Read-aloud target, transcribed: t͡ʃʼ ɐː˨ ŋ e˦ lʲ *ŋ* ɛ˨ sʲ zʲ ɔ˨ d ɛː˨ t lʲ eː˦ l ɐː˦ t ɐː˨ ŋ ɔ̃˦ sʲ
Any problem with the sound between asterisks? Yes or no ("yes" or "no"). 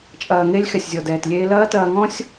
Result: yes